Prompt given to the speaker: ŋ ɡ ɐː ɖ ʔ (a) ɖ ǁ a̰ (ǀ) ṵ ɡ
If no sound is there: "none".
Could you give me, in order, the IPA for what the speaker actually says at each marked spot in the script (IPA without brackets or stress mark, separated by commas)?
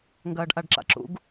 a, ǁ